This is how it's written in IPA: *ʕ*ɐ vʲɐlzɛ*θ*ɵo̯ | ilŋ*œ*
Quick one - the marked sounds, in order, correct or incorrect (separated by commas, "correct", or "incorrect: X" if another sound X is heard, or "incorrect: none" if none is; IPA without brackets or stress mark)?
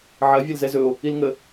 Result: correct, incorrect: z, incorrect: ə